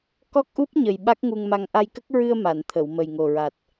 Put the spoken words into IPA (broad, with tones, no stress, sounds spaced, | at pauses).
k ɔ˦˥ k̚ ʔ u˦˥ p̚ ɲ ə˨˩ j ɓ a˦˥ k̚ ŋ u˧ ŋ m a˧ ŋ ʔ a˧ j k ə˦˥ k̚ ɹ ɨ˧ ə̯ m a˨˩˨ n t̪ʰ ə˨˩˨ w m ə˨˩ j ŋ o˨˩ ɹ a˨˩ t̚